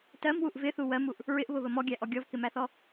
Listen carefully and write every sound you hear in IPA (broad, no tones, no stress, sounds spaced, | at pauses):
t ɜ m w u ʔ v ɪ θ u w ɜ m u ʔ | ɹ ɪ ʔ β ʊ β ə m ɔ ɡʲ æ ʔ ɔ ɡʲ ɔ v k ɪ m æ θ ɔ